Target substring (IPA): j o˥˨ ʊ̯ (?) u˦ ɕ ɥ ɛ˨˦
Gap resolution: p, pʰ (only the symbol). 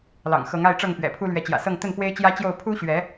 pʰ